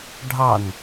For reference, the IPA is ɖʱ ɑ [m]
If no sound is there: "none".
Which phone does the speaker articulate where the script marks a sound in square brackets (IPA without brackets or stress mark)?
n